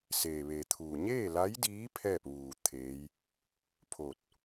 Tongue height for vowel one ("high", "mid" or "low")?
mid